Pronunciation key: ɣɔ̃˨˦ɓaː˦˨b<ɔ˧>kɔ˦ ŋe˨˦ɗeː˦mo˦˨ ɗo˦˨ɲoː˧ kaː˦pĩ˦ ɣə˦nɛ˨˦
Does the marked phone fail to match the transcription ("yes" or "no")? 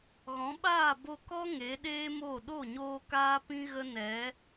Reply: yes